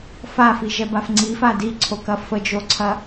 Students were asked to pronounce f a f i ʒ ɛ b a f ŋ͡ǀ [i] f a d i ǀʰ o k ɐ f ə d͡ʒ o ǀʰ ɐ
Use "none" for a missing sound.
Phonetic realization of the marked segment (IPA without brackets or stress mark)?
i